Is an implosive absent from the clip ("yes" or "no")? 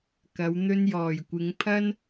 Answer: yes